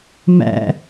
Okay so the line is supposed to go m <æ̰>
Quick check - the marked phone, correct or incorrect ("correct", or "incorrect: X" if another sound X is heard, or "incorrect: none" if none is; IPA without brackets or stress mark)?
correct